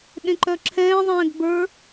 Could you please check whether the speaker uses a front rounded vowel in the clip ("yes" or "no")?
yes